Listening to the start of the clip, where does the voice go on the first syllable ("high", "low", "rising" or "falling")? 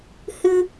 high